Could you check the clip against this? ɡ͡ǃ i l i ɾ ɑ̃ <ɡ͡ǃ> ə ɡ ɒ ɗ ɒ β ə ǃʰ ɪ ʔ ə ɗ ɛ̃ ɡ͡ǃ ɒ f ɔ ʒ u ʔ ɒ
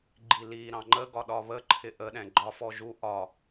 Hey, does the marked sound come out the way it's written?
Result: no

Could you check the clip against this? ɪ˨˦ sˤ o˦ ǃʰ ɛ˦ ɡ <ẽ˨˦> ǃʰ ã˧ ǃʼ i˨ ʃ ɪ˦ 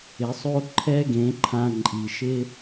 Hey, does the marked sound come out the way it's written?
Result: yes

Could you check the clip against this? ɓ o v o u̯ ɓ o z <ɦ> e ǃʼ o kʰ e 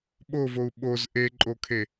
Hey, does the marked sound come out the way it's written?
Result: no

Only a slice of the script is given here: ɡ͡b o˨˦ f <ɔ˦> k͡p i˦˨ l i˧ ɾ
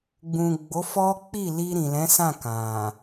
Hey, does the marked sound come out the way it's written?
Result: yes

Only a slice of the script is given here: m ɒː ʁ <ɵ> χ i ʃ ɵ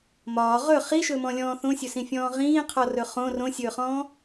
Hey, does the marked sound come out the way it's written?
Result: yes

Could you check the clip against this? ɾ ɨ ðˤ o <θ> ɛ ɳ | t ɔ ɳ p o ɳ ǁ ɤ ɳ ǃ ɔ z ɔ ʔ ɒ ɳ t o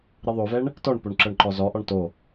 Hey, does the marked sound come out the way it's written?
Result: no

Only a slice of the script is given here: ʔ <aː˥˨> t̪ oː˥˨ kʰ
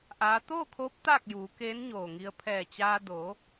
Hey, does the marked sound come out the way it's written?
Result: no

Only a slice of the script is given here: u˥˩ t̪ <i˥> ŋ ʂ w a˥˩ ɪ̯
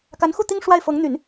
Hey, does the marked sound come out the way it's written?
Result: yes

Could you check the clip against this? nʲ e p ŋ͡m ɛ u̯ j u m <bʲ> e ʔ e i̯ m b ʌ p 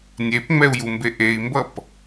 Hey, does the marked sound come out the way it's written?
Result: no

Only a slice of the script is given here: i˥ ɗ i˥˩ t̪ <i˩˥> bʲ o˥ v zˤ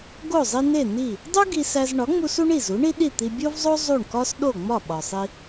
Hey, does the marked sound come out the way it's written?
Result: no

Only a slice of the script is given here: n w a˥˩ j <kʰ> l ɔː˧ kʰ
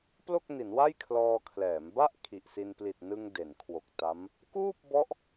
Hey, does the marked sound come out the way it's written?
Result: yes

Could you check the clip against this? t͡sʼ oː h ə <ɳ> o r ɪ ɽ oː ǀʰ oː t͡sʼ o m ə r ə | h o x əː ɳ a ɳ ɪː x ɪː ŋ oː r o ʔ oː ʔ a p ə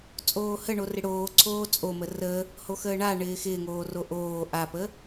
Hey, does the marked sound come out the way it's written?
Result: yes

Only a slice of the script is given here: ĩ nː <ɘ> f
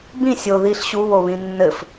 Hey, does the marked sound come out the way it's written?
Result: yes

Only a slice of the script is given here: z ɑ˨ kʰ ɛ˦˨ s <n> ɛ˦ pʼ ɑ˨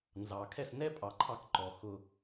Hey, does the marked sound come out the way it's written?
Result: yes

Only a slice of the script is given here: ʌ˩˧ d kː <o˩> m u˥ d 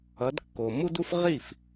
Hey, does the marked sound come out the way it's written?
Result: yes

